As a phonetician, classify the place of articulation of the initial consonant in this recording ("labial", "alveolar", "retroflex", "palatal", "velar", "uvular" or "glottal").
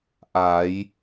glottal